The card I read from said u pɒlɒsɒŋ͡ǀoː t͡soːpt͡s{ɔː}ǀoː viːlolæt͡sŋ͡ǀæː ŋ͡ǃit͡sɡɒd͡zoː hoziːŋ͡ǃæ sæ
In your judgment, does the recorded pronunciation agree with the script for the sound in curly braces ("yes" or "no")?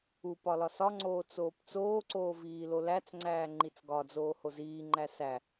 no